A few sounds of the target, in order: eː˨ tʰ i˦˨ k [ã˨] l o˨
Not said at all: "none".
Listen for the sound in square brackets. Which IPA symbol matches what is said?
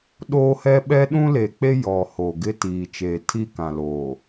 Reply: ã˨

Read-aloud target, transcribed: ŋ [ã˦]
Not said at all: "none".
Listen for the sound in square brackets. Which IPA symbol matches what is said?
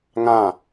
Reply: ã˦˨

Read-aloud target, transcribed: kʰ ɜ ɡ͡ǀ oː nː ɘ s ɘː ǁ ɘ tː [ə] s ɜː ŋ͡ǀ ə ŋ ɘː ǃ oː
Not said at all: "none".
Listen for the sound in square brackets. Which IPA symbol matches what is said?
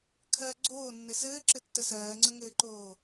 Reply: ə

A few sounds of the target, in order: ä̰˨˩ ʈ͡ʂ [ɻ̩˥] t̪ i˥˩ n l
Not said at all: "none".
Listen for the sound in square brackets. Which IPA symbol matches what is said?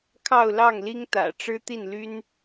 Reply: ɻ̩˥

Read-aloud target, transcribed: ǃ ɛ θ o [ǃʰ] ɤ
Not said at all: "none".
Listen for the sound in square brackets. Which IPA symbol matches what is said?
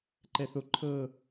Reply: ǃʰ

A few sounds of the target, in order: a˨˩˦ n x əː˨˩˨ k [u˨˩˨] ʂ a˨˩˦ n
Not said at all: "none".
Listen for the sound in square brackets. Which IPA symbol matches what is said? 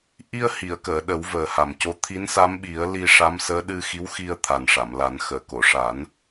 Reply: o˨˩˨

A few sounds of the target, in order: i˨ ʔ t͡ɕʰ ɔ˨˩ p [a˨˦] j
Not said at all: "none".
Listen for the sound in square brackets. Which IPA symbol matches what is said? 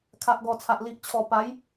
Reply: a˨˦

